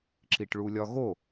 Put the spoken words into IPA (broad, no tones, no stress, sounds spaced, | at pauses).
ǁ i ʈ ɭ u lʲ ɒ ɣ o